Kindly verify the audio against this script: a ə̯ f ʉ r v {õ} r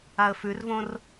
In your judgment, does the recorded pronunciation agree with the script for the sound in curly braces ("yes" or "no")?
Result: yes